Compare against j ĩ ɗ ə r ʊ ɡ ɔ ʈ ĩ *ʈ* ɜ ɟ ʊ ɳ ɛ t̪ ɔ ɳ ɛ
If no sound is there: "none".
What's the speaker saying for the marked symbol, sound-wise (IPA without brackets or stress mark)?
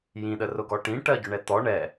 ʈ